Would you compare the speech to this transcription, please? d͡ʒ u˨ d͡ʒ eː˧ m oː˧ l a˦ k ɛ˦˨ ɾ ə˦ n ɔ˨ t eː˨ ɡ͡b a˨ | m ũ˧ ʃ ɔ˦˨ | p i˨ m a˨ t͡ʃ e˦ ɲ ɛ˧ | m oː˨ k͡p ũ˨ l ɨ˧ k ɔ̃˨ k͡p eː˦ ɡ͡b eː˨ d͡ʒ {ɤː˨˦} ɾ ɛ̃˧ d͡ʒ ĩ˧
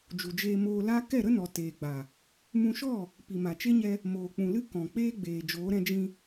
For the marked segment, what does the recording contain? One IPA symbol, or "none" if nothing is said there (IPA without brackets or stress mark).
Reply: oː˨˦